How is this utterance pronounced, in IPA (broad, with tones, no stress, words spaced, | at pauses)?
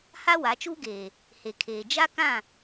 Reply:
ha˦wa˨˦t͡ʃuː˦ɡeː˨ | he˨kʰeː˨ d͡ʒa˦ kã˦˨